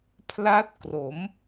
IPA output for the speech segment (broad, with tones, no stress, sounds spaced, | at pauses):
pʰ l a˦˥ t̚ k r o˩˦ m